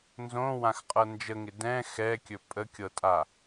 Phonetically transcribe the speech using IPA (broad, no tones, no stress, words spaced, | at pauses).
nzõwãxqʼɤ nd͡ʒəŋɪ dɛ̃ xɛkʲɵ pʼəkʲɤtʼa